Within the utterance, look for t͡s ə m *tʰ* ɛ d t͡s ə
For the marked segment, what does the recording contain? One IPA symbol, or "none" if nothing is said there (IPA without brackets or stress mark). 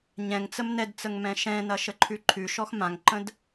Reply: n